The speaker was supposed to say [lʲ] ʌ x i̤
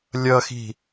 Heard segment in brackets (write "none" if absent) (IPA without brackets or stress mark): lʲ